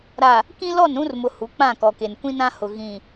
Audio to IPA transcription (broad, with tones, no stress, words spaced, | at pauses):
ɾa˨ | kĩ˦lɔ˦˨nɾũ˦rmʊ˨ hu˨˦k͡pã˦˨kɔ˨ke˨n kʷĩ˦nã˦hʊ˨ ɣĩ˨